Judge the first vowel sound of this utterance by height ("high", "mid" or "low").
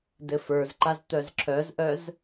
mid